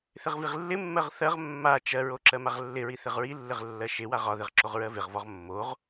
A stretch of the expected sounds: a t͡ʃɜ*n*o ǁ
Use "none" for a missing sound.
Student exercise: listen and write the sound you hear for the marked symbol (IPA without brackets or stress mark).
ɹ